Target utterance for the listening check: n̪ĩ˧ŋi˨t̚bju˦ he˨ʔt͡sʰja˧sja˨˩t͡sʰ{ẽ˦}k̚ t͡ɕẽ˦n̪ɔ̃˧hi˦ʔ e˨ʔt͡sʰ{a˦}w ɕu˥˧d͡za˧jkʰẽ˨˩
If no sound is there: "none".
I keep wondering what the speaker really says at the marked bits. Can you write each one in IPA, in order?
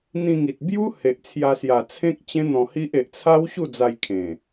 ẽ˦, a˦

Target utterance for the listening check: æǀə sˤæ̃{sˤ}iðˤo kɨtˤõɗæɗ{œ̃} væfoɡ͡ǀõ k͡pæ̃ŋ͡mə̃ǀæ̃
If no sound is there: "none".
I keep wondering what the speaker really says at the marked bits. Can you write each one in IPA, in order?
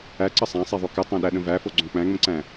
sˤ, ə̃

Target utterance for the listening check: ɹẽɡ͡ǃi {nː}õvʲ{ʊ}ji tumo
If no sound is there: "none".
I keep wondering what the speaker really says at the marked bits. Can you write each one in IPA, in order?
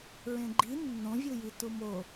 nː, ɯ

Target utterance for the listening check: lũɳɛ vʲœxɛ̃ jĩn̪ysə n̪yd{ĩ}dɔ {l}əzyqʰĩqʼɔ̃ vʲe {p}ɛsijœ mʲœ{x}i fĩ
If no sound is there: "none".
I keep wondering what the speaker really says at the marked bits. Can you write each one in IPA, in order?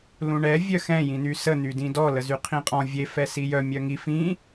ĩ, l, f, ŋ

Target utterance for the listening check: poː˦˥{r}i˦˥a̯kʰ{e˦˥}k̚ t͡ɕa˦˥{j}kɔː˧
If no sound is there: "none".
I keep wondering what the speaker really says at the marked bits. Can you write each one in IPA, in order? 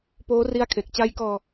r, e˨˩, j

